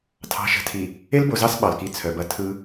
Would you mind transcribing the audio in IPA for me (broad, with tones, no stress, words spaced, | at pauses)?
tʰɑ̤˨ʃə̤˨tʰi˨ | e˦lbo˨zɑ˦s ɓɑ˨lki˨ t͡sʰœ˨bɐ˦ tʰɯ˦